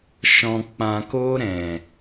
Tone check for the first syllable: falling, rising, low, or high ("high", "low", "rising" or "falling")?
low